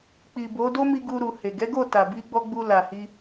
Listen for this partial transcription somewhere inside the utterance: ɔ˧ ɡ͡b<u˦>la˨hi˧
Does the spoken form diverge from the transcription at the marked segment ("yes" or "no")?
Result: yes